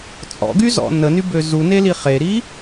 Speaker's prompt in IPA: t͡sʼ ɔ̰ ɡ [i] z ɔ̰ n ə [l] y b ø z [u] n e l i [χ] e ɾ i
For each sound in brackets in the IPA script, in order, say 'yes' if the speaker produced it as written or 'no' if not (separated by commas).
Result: no, no, yes, yes